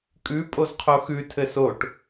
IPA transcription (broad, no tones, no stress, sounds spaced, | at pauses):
kʼ ʉ pʼ o z qʰ o x ʉ tʰ ɘ s o ʈ